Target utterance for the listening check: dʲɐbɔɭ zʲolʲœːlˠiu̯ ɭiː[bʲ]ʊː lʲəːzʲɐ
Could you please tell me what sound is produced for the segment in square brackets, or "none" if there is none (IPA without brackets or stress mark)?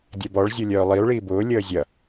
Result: b